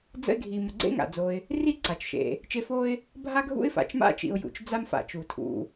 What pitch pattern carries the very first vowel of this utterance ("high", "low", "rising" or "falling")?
high